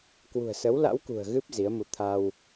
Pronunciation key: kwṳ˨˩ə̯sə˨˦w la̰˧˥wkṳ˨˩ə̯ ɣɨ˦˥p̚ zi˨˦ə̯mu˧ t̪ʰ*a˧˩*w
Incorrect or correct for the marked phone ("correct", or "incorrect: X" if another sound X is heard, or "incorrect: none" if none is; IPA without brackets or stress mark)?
incorrect: a˧